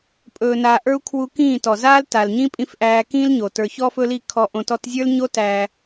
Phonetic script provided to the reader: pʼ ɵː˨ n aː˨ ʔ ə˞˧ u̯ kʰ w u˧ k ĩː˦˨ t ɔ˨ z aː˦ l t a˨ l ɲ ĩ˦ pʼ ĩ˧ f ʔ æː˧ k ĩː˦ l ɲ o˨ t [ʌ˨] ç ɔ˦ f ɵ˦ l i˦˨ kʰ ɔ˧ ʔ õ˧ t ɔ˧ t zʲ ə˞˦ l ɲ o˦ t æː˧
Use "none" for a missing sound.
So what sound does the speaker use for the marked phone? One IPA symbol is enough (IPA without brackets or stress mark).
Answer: ə˞˨